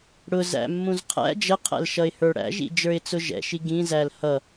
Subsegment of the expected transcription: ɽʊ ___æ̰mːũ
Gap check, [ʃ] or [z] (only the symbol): z